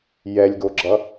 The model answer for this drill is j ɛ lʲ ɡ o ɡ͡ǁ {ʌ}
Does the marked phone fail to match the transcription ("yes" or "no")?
no